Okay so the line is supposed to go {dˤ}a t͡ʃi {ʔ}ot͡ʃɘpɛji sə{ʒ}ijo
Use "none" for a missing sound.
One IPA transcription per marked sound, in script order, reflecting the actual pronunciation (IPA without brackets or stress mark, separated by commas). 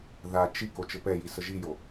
ð, k, ʒ